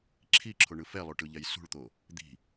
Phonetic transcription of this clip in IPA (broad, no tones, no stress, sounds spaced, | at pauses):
ǁʰ i ǁʰ o ɳ ɯ f ɛ lˠ o ʈ ɯ ʎ ɛ j s ṳ ɭ t̪ o | d̪ i̤